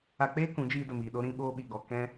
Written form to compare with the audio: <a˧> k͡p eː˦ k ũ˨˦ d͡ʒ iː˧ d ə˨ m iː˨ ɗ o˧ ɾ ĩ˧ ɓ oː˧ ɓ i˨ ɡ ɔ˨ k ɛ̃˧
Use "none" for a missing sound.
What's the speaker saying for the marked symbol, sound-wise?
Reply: a˧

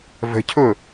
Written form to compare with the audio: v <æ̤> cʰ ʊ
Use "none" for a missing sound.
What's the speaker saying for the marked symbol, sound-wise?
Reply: ə̤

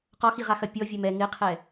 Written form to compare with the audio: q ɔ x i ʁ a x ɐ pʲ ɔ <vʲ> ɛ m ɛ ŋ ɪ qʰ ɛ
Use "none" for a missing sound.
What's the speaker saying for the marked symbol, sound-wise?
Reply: vʲ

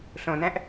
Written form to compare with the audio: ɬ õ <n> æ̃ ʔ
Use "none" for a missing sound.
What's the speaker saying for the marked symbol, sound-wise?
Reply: n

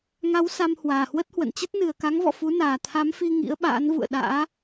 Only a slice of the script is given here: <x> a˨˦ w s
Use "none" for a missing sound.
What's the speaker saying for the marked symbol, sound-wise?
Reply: ŋ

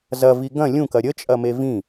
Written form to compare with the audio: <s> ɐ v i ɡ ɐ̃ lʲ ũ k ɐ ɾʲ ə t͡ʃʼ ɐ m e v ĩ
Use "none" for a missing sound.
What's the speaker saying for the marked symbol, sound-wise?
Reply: z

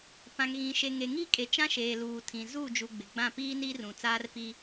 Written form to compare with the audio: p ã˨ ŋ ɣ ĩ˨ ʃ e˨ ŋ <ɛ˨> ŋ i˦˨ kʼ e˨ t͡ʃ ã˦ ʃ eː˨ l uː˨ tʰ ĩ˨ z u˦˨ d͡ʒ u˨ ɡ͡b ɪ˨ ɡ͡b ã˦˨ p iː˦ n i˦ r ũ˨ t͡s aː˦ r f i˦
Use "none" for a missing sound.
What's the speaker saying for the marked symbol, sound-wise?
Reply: e˨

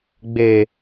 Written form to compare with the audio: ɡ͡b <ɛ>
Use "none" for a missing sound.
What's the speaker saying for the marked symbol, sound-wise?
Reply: e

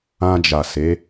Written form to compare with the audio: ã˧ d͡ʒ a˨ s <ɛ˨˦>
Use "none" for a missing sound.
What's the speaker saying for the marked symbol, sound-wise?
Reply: e˨˦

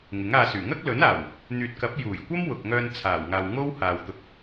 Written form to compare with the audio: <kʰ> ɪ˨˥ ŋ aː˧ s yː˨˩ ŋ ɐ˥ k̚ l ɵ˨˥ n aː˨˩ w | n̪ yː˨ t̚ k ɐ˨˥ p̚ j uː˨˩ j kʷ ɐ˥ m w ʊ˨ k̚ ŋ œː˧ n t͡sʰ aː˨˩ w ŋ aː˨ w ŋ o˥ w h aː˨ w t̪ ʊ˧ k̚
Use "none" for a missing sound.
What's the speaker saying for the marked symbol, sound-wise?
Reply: ŋ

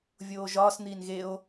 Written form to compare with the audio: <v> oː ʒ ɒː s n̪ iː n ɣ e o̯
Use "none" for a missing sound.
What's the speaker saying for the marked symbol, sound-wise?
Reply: vʲ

